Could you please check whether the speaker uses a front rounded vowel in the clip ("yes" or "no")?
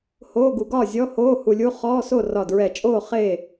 no